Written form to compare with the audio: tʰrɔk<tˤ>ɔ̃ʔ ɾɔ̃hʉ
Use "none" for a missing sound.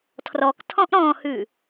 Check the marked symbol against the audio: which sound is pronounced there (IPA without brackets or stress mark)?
tʰ